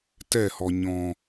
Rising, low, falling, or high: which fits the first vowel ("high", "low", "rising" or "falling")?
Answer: falling